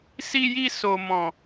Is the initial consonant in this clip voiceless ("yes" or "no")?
yes